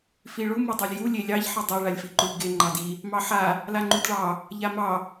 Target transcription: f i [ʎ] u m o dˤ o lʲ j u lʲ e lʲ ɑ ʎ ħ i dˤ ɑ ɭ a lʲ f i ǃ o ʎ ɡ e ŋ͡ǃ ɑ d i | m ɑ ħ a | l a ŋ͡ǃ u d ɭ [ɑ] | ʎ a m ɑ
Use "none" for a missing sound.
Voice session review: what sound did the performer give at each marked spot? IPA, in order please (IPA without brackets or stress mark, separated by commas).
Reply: ɭ, ɑ